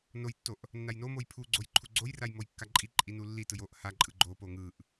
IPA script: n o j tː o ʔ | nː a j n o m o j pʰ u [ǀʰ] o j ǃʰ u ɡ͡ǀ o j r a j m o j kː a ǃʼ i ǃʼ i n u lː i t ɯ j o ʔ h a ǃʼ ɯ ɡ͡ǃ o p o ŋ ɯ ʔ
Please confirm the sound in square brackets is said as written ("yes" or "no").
no